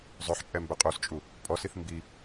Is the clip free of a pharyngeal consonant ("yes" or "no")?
no